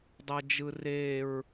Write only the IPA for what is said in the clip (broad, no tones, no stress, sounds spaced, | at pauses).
dˤ ɤ d͡ʒ ɯ r e ɹ